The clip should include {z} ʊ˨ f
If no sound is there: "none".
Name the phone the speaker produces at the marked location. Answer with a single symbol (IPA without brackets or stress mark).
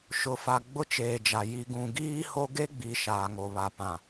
ʃ